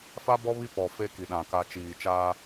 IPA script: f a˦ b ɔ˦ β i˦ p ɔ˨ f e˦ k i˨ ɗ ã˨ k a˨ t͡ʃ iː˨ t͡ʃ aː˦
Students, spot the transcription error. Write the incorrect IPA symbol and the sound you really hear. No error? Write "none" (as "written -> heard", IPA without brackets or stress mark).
none